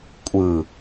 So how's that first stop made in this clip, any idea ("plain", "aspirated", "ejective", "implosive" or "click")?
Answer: ejective